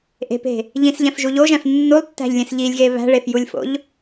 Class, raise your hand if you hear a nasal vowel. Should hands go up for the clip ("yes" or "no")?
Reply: yes